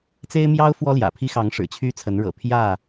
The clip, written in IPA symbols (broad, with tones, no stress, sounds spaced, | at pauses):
t͡s e˦ ɪ̯ m j ɑ˦ ʊ̯ f w ɔ˦ l j ä̰˨˩ pʰ i˦ x ɑ˨˦ ŋ ʂ ɻ̩˨˩ t͡ɕʰ y˦ t͡sʰ ə˨˦ n ɻ ɤ̰˨˩ pʰ j ä˥˨